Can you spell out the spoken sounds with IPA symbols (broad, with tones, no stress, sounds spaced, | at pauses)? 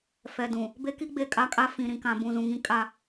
f ɛ˨ d ũ˨ | b e˦ k i˦ ɡ͡b e˦˨ kʼ a˦ kʼ a˦ f ĩ˨ ɾ ĩ˨ k ã˨ b ũ˨ z ũ˨ ŋ ĩ˦ kʼ a˦